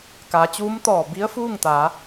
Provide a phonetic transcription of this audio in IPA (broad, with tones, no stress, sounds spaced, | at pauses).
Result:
k aː˩˧ t͡ɕ uː˧˥ m t̪ ɔː˧˩ b i˧˥ ə̯ f uː˥˨ ŋ t̪ a˩˧